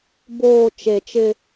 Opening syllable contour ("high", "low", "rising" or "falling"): low